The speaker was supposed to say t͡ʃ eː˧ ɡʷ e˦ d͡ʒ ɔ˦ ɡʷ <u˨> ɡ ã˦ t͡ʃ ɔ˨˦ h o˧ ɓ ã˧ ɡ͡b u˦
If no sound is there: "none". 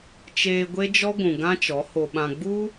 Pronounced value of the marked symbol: ũ˨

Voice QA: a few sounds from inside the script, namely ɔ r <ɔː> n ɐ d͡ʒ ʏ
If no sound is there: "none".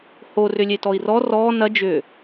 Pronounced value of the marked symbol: ɔː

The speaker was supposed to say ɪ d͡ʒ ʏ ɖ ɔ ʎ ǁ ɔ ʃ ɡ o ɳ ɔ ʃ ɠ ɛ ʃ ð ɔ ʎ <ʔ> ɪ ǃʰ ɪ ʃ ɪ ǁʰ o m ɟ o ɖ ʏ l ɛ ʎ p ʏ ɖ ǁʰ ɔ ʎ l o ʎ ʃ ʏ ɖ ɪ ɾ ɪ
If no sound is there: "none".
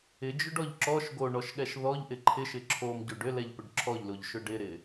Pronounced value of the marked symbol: ʔ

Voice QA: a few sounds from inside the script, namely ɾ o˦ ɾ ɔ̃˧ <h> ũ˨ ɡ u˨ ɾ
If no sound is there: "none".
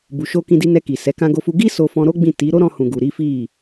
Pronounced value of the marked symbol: h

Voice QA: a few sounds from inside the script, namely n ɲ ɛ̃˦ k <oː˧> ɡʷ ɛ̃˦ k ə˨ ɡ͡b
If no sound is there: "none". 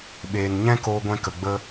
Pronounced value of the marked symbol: oː˧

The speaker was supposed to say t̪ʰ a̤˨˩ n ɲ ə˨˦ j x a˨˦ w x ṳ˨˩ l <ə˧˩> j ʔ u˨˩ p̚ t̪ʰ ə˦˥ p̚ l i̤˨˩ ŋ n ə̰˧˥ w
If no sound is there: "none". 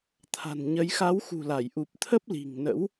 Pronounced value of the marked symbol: a˧˩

